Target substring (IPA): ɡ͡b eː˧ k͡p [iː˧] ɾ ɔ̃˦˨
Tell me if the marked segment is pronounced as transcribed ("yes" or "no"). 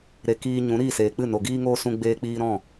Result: yes